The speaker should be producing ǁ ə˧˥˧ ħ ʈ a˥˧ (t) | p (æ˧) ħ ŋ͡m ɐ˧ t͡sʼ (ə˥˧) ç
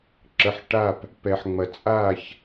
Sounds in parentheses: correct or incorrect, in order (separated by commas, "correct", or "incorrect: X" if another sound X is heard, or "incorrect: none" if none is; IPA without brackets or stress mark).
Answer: incorrect: p, incorrect: ɛ˧, incorrect: a˥˧